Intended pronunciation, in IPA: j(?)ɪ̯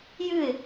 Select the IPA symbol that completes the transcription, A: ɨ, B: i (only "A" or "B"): A